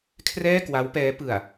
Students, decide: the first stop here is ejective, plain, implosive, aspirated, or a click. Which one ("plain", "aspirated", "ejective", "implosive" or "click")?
aspirated